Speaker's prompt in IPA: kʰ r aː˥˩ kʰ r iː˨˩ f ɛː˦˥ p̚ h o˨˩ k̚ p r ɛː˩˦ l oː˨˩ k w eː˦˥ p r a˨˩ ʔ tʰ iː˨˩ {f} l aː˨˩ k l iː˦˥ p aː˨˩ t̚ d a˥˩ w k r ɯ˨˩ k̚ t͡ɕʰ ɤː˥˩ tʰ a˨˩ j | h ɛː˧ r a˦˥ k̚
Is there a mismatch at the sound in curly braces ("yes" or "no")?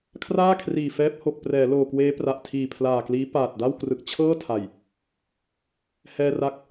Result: yes